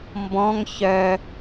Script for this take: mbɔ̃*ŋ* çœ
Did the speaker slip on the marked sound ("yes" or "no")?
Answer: no